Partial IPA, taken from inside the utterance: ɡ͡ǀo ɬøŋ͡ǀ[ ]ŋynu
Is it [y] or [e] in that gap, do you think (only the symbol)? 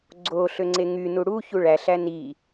e